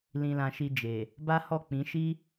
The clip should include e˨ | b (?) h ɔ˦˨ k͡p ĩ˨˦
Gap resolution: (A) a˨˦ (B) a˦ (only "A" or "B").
B